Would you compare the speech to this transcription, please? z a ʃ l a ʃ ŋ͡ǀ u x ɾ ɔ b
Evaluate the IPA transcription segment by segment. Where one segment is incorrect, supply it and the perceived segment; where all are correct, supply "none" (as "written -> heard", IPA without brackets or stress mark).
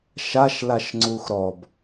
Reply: z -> ʃ